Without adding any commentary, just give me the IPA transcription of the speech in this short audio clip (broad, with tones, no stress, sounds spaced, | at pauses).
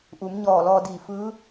ʔ u˩˧ m ɲ ɔː˧˩ l ɔː˧ d iː˧˩ f ɯː˧˥